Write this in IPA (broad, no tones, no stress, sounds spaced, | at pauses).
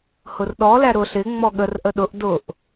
h ʊ r ɗ ɔ l æ ɾ ʊ ɬ ɪ ŋ͡m ɔ ɠ ə r ʔ ə ɗ ʊ ʔ d ʊ ʔ